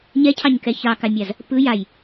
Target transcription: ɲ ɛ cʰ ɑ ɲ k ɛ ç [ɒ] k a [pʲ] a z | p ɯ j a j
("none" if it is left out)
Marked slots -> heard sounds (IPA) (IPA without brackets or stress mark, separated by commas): ɑ, mʲ